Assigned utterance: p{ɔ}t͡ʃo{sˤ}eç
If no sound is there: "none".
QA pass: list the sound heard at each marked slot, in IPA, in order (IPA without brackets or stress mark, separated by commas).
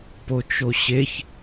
o, ɕ